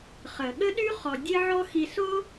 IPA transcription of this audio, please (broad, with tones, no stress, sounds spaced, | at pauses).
χ ə˨ ɠ ə˦ ɗ y˦ χ ɔ˨ dʲ e˦ ʕ ɔ˦ x i˧ s o˦